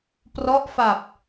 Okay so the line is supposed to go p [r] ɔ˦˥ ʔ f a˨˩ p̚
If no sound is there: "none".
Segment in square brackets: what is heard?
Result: r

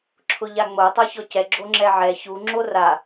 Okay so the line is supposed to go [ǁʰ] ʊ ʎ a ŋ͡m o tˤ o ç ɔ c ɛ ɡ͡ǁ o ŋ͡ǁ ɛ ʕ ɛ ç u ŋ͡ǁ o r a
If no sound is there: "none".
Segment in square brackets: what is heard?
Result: ǁʰ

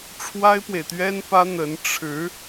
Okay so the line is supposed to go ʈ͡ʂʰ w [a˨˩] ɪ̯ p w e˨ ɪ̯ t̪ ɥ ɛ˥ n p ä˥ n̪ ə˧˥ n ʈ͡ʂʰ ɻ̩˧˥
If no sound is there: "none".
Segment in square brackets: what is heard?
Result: a˥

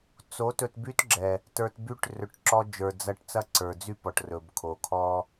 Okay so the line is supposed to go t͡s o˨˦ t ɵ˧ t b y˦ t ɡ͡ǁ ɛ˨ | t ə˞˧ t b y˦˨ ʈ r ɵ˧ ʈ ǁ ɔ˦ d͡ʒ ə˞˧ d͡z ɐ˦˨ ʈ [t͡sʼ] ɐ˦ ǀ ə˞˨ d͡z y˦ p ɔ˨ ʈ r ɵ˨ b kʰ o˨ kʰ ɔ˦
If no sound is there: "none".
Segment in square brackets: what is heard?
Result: t͡s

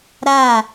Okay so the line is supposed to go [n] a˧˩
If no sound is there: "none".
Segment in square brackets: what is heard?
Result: ɾ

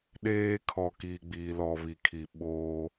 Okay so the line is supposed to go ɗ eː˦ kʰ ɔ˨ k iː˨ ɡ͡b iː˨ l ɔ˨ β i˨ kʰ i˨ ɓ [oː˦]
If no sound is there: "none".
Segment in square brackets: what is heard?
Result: oː˦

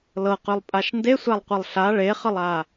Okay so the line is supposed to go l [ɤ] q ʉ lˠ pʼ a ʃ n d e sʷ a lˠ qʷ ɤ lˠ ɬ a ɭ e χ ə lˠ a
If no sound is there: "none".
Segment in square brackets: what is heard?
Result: ɤ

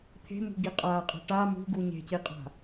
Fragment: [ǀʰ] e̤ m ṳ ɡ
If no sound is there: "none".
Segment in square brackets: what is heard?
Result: t̪ʰ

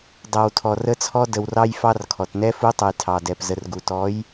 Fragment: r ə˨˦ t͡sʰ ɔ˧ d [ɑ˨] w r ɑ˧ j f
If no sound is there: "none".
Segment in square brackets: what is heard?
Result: ə˨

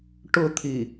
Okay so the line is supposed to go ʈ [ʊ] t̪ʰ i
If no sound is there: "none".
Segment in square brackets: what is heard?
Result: ʊ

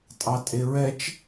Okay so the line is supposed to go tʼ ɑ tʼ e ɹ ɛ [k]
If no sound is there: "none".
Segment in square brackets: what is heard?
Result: t͡ʃ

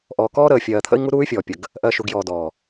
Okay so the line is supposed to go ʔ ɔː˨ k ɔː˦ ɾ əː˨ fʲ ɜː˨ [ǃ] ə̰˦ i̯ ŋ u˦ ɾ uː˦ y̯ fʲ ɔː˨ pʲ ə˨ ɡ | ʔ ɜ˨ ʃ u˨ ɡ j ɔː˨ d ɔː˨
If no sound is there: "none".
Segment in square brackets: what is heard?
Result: t̪ʰ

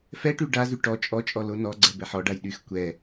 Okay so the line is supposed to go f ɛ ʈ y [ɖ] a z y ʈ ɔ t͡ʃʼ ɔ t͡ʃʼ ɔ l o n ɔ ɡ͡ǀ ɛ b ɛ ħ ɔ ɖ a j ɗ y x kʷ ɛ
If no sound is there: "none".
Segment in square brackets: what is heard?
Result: ɖ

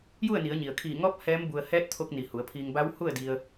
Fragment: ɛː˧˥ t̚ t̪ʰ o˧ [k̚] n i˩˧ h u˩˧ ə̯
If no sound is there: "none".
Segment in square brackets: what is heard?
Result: k̚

